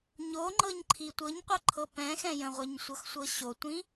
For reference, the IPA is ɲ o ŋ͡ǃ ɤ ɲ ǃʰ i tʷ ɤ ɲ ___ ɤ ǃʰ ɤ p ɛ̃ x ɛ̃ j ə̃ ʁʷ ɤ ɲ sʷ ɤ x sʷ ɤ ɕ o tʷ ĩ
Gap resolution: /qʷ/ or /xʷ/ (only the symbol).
qʷ